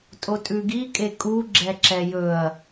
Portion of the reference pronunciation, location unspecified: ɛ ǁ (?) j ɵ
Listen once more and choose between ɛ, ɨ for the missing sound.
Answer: ɛ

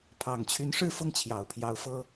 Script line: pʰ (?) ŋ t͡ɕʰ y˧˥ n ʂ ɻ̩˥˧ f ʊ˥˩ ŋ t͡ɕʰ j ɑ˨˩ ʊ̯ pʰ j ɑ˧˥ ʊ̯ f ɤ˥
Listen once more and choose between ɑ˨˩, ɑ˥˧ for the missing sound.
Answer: ɑ˨˩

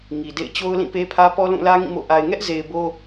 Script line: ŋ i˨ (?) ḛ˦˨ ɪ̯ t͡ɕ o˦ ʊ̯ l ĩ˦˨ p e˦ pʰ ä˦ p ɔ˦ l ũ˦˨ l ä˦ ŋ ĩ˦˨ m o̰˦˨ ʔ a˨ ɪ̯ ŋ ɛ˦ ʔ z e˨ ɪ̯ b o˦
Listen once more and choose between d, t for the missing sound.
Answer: d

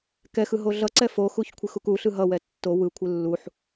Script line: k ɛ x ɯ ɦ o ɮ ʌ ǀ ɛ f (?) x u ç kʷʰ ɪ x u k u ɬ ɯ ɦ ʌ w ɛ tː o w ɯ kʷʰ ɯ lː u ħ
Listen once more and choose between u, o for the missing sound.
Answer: o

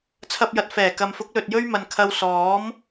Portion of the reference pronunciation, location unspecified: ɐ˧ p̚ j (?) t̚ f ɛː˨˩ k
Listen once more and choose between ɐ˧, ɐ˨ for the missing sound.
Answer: ɐ˨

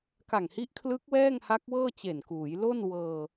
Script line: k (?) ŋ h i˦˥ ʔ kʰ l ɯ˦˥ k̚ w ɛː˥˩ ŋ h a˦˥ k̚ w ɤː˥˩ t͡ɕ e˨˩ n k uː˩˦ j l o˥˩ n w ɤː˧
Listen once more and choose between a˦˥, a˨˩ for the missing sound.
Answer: a˨˩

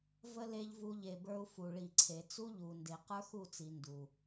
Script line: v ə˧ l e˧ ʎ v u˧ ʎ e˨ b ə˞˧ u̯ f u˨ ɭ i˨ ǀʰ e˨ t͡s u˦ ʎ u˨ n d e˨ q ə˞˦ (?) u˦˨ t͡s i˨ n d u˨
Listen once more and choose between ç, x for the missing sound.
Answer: x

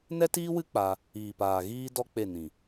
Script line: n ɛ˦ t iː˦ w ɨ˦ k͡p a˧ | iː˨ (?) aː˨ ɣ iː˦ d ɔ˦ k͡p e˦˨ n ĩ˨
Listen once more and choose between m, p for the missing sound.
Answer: p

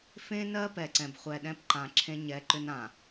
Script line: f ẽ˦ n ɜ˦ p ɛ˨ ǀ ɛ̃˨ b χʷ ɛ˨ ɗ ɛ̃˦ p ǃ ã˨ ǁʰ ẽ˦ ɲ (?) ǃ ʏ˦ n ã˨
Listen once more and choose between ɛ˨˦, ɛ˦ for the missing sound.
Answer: ɛ˨˦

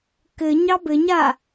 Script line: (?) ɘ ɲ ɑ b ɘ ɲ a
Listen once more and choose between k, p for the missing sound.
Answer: k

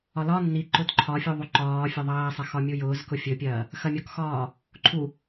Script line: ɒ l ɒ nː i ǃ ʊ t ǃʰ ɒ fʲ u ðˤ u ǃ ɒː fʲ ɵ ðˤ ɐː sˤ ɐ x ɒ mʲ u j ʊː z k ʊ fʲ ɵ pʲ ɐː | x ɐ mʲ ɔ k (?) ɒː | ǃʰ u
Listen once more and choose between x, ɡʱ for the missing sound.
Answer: x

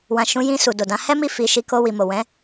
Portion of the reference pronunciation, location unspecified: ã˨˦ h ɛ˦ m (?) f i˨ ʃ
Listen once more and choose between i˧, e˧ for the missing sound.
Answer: i˧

